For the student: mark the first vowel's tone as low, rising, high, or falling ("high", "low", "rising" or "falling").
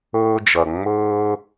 high